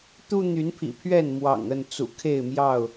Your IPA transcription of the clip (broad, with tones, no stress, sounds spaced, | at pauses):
t̪ u˦ n̪ y˨˦ n pʰ ḭ˨˩ pʰ ɥ ɛ˥˨ n m w ɑ̰˨˩ ŋ ə˥˨ n t͡s ṵ˨˩ kʰ e˥˨ ɪ̯ m j ɑ˥˨ ʊ̯